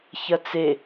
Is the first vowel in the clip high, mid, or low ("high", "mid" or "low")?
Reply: low